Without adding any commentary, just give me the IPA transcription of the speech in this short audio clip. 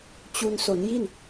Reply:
t͡ɕ u˧ n s o˩˦ n j i˥˩ n

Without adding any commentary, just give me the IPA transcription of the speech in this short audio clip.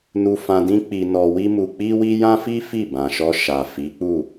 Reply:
n u˧ f ã˧ d ĩ˦ k͡p i˧ n ɔ˧ w i˦ m u˧ k͡p i˦ w i˦ j ã˦ f i˦ f i˦˨ b ã˨ ʃ ɔ˧ ʃ a˨ f i˨˦ k͡p u˦˨

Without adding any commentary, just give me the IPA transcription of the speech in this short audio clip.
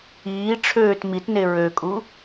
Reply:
iː ʈ͡ʂʰ øː t m i t n e ɹ ø kʼ u

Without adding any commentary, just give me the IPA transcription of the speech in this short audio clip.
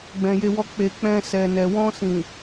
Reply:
ɡ͡b ɛ̃˨ j e˧ w ɔ˧ k͡p e˨ k͡p ɛ̃˧ s ɛ˨ n ɛ˨ w ɔ̃˧ s ĩ˨

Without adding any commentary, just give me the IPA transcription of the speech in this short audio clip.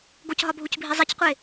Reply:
ɡ o c ɦ ɒ bʱ u c bʱ i zˤ i c qʷ e

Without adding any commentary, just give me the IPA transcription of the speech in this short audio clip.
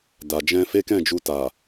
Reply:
d a˨ d͡ʒ ɛ̃˧ f e˦ k ɛ̃˦˨ d͡ʒ u˧ t a˨

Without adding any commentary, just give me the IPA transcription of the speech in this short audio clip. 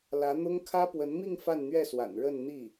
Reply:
l ä˧˥ n̪ ʊ˥ ŋ kʰ ä˥ p w ə˧˥ n m i˥˧ ŋ f a˥˧ n n̪ ɥ ɛ˥˩ s w a̰˨˩ n ɻ ə˥˧ n n̪ i˥˩

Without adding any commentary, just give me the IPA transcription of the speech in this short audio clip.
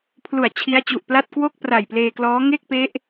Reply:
pʰ l u˨˩ a̯ t͡ɕʰ i˦˥ a̯ t͡ɕ u˨˩ ʔ p l a˥˩ t̚ k w o˥˩ k̚ p r a˨˩ j p l eː˧ k l ɔː˦˥ ŋ e˥˩ k̚ p e˦˥ ʔ

